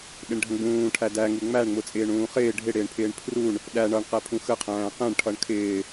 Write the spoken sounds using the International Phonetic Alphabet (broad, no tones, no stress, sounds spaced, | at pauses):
ɗ ɪ ɳ ɖʱ ə̃ ɡ͡b ũː ʈʰ æ d æ ŋ u ŋ͡m æ ɳ ŋ͡m ʊ t͡sʼ ɪː ɳ ũː χ ɪː ɖʱ ɪ ɽ ɪː ɳ pʰ ɪː ɳ pʰ r u ɳ | ɗ æ ɳ ʌ ɳ q æ pʰ ũ x ə qʰ æ̃ː q ɛ̃ ɳ ʈʰ ʌ ɳ kʰ ɪː